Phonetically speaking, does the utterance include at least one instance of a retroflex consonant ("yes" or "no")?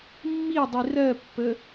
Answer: no